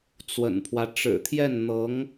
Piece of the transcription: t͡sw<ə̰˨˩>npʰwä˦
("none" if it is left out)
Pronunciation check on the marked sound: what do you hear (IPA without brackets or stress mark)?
ə̰˨˩